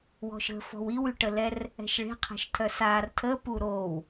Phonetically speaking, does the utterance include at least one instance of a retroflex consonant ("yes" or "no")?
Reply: yes